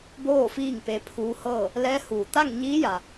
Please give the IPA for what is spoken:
boː˥˨fiː˥˨ŋ pe˧˥pʰuː˧˥hɤː˥˨ | lɛː˧˥huː˧˩ t̪a˥˨ŋ ɲiː˧˥ja˩

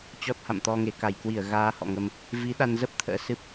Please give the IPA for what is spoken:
t͡ɕɔ˦˥t̚ha̰˧˨mt̪ɔ˧ŋe˧˩ ka˧˩jkwi˧˩ə̯ ɣaː˧hɔ̰˧˨ŋə˧m | vi˨˦ɗa˧nzə˦˥p̚ t̪ʰə̰ː˧˥sɨ˦˥p̚

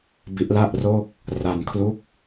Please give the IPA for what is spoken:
bi˦˥ʔla˥˩ʔ roː˥˩k̚ | ra˧nkʰlu˦˥k̚

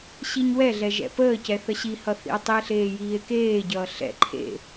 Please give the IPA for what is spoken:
ɕiɲwɛɮɛ ʒɛ̰pəːcɛ θəɕihʌ θḭo̯tˤie̯ɬeː jiːe̯keːɟʌː ɬɛ̰ ǃʰḛ

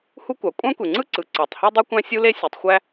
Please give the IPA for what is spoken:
hu˥kʷɑ˩ kʷʼɑ̃˥kʷe˩ŋ͡ǀɯ˥ ǀɯ˩ǀɑ˩tˤ hy˥dˤi˥kʷæ̃˥ sʲu˥le˥ sʲo˩tˤxʷæ˥

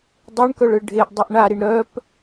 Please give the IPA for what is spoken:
dˤeɳkœɭɯ ɖʱeʔdˤuʔ ɳaɾiɳ ɾœp

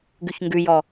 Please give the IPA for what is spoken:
ɡʉçŋɡʉjɔ

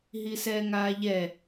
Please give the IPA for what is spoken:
ɦisɛːŋaːʎɛ

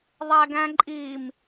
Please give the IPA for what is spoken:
ðˤæɡæ̃ǃʼim

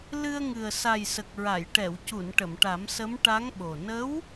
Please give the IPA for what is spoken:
lɨ˧ə̯ŋɨ˨˩ə̯ sa˨˩jsə˨˩k̚ɹa˨˩˨j ʈɛ˨˩˨wcu˨˩˨n ʈə˨˩˨mʈa˨˩˦msə˧˥m ʈa˧˥ŋɓo˨˩ nə˧˥w

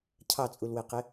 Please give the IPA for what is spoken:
cʰɑt͡sʼulweqe

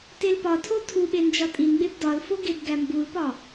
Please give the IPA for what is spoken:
telpɒtʰo tʰuɓe nd͡ʒɒtʼinɡ͡beb dɒlfo ɡebɡæmbulpɒ

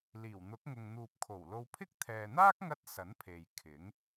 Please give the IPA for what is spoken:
liː˨˩wn̪ʊ˨˥k̚ŋʊ˨ŋ n̪uː˨p̚kʰo˨˩wlo˧wpʰɪ˥k̚ t̪ʰɛː˨n̪aː˥k̚ŋɐ˧t̚ sɐ˨˥npʰe˨j kʰɪ˨˥ŋ

